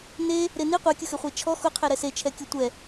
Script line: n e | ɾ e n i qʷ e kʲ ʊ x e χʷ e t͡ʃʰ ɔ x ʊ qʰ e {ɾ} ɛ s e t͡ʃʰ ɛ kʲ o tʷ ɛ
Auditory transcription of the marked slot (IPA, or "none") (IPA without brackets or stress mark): ɾ